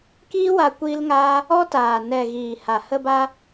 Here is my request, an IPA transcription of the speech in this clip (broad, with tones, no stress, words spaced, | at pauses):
kiː˦wa˧ kʷiː˦lŋaː˦ | ɔ˦taː˨ nɛ˨ ɣiː˨ha˨ hə˧ba˧